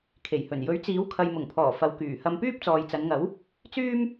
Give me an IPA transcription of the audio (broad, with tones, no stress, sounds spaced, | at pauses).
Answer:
kʰ e˨˩ j h ɵ˨˩ n j ɵ˨˥ ɥ t͡s iː˨˥ w kʰ ɐ˨ j m ʊ˨˩ ŋ pʰ ɔː˨˩ f ɐ˨˧ w k yː˨˩ h ɐ˧ m p yː˥ p̚ t͡s ɔː˨ j t͡s ɐ˨˧ n ŋ ɐ˨˥ w | t͡s yː˥ m